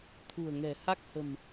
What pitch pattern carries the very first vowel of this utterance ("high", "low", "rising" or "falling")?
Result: low